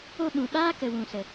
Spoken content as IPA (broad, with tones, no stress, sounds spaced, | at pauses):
o˧ ɓ ũ˨ ɓ aː˦ k ə˨ w ũ˨ s ə˨